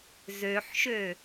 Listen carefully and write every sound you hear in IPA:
zøħʃø

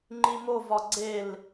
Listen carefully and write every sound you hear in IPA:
ŋ͡ǃimovɒ ɡ͡ǀel

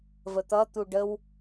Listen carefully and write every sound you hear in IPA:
vət̪ʌt̪u ɖəw

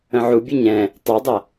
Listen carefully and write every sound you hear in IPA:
ə̃ʕubʲɨ ɲɛ̃ | tˤɑdˤɐ

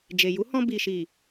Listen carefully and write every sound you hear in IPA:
d͡ʒe˨ ju˨˦hɔ̃˧ bi˨ʃi˨

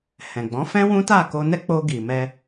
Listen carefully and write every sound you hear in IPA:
hɛ̃˨ɡ͡bɔ̃˨˦ fɛ̃˦wũ˦ta˦˨ ko˧nɛ˦k͡po˧ ɡi˨mɛ˧

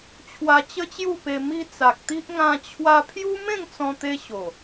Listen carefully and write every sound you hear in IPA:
t͡ɕʰwa˧t͡ɕə˦t͡ɕju˥˧pe˧ mi˧ t͡sa˨k̚t̪i˦ʔ ŋã˧ t͡ɕʰwa˧pʰju˦ mẽ˥˧ŋt͡sɔ̃˧t̪e˧ ɕo˨˩

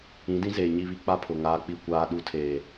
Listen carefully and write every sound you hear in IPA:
ĩ˨˦dĩ˦zeː˨ ɲi˦˨βi˦ k͡pa˦pʰʊ˨ ŋaː˦k͡pi˦˨kʷaː˦ ɗu˦tʰeː˨

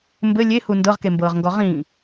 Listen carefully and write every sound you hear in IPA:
mbɘ lʲehu ndɤʁkembɤːʁŋɡɔ ʁĩː

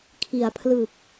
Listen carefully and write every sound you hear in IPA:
kʰi˩˦a̯ pʰlɯ˨˩k̚

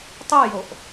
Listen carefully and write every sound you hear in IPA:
tˤyjoʔ

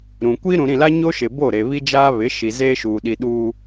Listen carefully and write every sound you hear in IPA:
ɾũ˨ kʷiː˦ɾũ˨ɾĩ˦˨la˦ ɲo˦ʃɪ˨bo˦˨ɾe˨ βi˦d͡ʒaː˦ βɪ˨˦ʃi˨ zeː˦ʃuː˨ɗi˨ɗuː˨

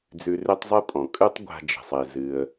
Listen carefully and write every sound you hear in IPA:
d͡zʉ˧re˥tˤzˤɨ˥pʼɔ̃˩ kʼʉ˥tˤ ɡʷa̤˧d͡ʒe̤˩sˤe˩ zɨ˩ə̯

